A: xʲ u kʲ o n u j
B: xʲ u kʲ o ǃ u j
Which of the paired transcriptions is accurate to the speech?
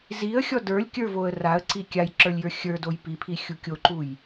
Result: B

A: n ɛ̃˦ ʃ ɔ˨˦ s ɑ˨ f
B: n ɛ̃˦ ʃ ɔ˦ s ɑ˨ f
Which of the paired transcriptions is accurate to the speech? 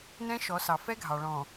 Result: A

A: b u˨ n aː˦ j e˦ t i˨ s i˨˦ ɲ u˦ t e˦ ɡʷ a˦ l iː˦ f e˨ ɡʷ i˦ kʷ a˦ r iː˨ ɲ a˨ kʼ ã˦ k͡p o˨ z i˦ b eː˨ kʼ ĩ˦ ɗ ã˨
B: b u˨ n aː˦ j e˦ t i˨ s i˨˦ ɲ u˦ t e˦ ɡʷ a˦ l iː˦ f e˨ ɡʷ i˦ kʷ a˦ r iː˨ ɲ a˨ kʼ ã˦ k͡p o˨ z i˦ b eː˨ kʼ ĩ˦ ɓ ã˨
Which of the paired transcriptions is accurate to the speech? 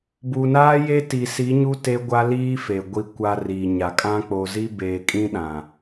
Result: A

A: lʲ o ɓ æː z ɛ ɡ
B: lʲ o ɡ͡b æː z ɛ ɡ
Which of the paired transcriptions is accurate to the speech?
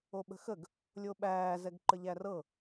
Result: A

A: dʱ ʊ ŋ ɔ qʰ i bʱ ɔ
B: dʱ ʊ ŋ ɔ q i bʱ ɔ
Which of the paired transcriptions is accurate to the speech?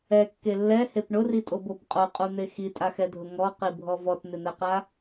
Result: B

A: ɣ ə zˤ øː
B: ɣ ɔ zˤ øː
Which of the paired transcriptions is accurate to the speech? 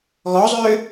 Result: B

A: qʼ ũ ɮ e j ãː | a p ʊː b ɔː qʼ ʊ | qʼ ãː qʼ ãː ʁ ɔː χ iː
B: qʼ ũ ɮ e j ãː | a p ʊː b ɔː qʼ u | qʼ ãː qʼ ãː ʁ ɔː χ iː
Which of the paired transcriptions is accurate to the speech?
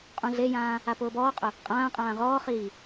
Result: A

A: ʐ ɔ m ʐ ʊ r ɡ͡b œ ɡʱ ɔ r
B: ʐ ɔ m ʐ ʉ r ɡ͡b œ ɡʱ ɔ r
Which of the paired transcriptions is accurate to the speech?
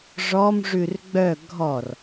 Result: B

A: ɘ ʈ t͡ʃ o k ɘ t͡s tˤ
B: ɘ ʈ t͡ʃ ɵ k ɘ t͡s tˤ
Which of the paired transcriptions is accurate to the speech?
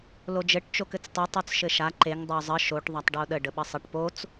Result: A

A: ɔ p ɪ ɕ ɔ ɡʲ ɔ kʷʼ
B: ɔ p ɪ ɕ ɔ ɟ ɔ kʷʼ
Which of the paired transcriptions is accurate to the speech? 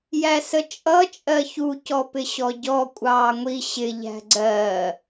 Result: B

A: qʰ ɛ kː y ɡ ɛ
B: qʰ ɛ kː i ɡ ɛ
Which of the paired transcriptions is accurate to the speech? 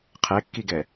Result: B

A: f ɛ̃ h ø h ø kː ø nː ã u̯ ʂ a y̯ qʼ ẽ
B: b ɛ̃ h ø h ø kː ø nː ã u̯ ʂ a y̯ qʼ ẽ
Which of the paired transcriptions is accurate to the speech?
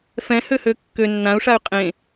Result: A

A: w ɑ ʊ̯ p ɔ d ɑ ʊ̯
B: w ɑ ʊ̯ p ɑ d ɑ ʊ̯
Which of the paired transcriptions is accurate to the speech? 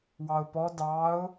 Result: A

